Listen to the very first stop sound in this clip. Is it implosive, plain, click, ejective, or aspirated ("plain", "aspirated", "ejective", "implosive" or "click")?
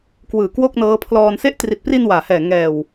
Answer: plain